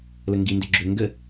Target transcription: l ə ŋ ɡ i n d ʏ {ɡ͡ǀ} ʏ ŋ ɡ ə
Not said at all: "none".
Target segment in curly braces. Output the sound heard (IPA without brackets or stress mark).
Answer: ɡ͡ǁ